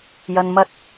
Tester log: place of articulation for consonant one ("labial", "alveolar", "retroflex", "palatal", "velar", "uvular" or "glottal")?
palatal